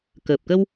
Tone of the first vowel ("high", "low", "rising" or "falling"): low